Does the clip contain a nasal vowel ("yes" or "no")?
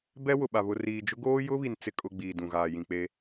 yes